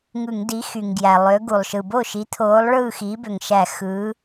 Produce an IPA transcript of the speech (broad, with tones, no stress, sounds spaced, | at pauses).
ŋ ɯ˧˩˧ ŋ d i˨˥ x y˩ ŋ ɡ j æ˩ lˠ ø˨˥ ɡ u˩ lˠ ʃ ɯ˩ b o˥˨ ʃ i˨˥ t̪ʰ oː˨˥ lˠ ɭ ɯː˥˨ x iː˨˥ b ø˩ ŋ ʃ æ˧˩˧ x ɯː˨˥